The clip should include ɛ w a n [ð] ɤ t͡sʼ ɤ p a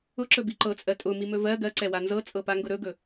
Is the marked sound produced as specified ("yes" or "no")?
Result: no